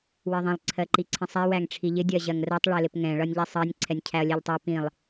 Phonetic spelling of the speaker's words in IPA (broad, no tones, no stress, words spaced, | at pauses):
wɜðˤĩlˠ ǀʰɜǃiǀʰĩsˤæ wæŋʈ͡ʂʰiʎɪ dʲɜʑɜŋrɜtˤ ɭɛlɪpŋɛ̃ ɭʌnʲʎɛsˤɜnʲ ǀʰɛnʲcʰæɐ̯lʲɛʎtˤæ pĩlˠ